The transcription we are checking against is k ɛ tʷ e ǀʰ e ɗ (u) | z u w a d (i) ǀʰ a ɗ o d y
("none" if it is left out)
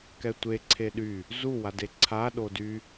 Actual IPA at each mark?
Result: y, e

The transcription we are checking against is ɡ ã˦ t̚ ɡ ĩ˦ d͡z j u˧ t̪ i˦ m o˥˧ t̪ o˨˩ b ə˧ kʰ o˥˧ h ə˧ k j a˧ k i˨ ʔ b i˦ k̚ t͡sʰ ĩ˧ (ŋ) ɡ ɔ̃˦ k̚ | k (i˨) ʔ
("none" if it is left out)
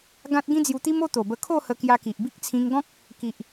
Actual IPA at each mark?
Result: ŋ, i˨

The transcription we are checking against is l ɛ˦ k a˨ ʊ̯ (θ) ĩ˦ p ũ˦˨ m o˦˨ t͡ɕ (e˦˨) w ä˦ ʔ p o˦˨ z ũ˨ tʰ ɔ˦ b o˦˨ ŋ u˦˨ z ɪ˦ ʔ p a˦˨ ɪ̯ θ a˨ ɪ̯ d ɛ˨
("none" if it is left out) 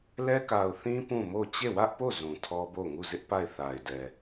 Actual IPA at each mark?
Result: θ, e˦˨

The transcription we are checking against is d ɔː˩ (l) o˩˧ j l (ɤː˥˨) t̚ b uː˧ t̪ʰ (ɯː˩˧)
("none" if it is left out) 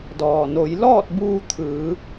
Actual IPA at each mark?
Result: n, ɔː˥˨, ɯː˩˧

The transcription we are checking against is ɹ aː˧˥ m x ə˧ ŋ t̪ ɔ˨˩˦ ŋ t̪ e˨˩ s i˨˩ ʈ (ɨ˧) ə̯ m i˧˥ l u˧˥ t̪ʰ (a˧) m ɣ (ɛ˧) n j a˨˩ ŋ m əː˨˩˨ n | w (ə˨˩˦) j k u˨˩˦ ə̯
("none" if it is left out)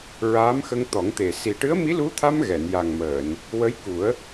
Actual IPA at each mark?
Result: ɨ˧˥, a˧, ɛ˨˩˨, ə˧˥

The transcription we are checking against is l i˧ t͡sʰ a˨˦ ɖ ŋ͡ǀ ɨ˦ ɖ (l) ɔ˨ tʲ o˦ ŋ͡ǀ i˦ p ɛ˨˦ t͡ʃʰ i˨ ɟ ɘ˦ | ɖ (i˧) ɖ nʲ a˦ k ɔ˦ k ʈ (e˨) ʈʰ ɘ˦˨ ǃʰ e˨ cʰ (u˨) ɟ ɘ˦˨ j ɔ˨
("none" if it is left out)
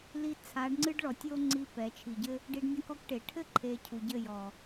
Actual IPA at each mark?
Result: ɭ, i˧, e˨, u˨

